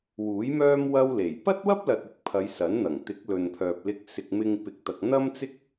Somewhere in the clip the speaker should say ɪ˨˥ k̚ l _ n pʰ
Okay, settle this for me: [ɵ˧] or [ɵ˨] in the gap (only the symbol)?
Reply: ɵ˨